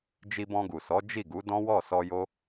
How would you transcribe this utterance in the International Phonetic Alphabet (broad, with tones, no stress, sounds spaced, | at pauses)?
d͡ʒ i˧ b ɔ̃˧ ɡ u˨ s ɔ˨˦ d͡ʒ i˦˨ ɡ u˨˦ d ɔ̃˦ w ɔ˦˨ s ɔ˧ j o˦